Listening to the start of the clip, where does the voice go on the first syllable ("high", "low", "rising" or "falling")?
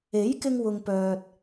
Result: rising